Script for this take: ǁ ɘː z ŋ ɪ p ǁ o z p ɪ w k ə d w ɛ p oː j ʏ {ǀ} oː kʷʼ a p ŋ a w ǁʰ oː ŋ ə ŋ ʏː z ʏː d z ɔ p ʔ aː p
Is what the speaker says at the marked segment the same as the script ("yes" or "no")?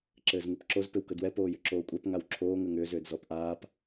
no